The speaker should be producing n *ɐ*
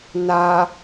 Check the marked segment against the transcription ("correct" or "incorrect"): incorrect